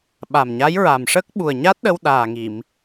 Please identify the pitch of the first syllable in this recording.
low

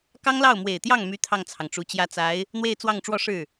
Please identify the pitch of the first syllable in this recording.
high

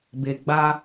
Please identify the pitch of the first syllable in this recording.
low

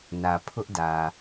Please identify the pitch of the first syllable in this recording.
low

